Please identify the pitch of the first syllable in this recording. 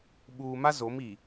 low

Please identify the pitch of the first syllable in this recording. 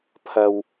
low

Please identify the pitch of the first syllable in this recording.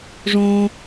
high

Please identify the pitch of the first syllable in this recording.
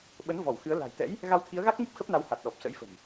rising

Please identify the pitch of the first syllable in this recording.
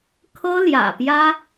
high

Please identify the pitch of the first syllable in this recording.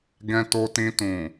low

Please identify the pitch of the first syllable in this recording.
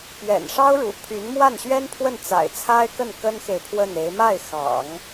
low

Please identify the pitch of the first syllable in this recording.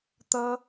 high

